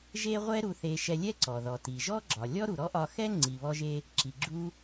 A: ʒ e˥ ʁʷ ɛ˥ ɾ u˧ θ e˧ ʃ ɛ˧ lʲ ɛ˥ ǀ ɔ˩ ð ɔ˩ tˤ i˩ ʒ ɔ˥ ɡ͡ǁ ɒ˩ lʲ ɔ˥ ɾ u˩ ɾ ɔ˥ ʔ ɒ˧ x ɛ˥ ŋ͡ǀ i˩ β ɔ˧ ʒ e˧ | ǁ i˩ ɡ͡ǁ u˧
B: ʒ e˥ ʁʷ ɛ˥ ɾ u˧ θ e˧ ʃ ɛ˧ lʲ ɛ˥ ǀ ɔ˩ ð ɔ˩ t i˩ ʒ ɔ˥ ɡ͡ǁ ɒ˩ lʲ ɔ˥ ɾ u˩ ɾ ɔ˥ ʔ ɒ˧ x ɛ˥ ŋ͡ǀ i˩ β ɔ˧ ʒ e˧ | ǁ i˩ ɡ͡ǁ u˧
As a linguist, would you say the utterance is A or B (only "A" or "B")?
B